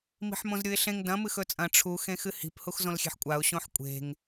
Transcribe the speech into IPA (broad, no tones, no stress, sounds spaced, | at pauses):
m i̤ ħ m õ z ɾʲ u ɪ̯ ɬ ẽ ŋ d ɐ̃ m ɨ x ɵ t͡sʼ ɐ̃ ʈ͡ʂʰ u x ẽ x ɨ h i̤ p h u x z õ l xʲ e̤ ħ kʷʼ a ʊ̯ ɕ õ ħ kʷʼ e̤ ŋ